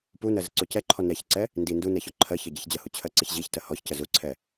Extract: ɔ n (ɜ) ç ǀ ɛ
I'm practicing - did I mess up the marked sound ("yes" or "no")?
yes